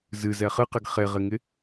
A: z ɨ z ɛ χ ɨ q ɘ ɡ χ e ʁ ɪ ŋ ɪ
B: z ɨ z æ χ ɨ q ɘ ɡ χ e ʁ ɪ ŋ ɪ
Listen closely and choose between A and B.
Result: A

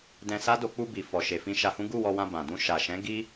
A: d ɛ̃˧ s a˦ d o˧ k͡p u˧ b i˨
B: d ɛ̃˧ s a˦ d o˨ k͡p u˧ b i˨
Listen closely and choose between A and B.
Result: A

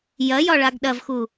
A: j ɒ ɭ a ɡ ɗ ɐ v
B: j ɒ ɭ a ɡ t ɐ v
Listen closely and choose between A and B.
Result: A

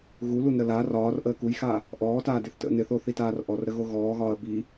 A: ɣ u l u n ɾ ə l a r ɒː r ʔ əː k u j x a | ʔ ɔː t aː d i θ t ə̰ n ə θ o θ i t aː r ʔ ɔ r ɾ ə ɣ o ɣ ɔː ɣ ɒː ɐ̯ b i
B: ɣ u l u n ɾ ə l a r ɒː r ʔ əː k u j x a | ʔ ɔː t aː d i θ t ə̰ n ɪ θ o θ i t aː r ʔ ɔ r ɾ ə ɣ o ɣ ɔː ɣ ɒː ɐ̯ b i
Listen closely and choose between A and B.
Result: B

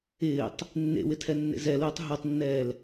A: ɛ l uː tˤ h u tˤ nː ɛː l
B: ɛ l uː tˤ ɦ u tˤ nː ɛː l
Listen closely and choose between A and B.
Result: B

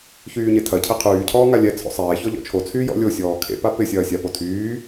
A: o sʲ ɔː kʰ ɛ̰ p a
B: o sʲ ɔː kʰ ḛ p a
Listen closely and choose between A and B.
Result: B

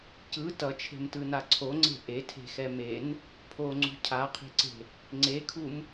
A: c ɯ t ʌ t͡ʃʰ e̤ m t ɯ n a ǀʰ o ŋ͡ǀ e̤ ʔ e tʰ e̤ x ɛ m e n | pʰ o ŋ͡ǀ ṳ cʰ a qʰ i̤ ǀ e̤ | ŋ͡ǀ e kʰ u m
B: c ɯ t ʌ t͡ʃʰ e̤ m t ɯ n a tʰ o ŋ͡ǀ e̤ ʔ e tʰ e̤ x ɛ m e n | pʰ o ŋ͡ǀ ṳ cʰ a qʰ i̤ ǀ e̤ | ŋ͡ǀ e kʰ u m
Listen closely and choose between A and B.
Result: A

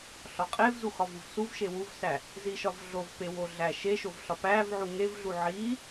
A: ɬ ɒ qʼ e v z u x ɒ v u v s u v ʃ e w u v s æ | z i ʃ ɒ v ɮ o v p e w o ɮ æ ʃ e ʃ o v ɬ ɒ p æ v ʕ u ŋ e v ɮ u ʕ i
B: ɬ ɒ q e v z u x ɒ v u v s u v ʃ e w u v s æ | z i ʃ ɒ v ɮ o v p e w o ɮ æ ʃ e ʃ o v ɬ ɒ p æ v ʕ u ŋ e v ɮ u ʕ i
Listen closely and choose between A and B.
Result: A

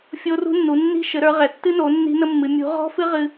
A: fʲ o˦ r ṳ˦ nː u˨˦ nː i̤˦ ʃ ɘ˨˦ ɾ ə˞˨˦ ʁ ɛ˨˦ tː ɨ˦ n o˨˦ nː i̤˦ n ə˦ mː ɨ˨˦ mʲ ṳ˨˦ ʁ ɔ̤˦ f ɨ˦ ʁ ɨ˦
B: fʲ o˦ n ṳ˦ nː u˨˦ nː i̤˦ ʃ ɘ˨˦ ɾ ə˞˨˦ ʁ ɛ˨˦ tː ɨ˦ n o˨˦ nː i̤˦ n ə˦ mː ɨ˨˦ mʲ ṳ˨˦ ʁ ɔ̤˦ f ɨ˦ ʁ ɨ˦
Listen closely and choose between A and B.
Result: A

